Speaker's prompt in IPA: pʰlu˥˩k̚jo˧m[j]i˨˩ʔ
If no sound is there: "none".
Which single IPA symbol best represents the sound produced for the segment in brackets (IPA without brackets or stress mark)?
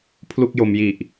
j